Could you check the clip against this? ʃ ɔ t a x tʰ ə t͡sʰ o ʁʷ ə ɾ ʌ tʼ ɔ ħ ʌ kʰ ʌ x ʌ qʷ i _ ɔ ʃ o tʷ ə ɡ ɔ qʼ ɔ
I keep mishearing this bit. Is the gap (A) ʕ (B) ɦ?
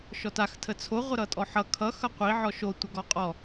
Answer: A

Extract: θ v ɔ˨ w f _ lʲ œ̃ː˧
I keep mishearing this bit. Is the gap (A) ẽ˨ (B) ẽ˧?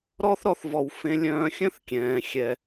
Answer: B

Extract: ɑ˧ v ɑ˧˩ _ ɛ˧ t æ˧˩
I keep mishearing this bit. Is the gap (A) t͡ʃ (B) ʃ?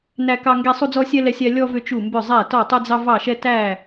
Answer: B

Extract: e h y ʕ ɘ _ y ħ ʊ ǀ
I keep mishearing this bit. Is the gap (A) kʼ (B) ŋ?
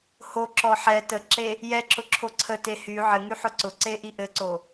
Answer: B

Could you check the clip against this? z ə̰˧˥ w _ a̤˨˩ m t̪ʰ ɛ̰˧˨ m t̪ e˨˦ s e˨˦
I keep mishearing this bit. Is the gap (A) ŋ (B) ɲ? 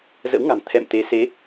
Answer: A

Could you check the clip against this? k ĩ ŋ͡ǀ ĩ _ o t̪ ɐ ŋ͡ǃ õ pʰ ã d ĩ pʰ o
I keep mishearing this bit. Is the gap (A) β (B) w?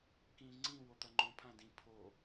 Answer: B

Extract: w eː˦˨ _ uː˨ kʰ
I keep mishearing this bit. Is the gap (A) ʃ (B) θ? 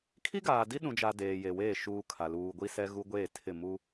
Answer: A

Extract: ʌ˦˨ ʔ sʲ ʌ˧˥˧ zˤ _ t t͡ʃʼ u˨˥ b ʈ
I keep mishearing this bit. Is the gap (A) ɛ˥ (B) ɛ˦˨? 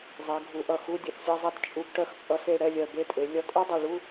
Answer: A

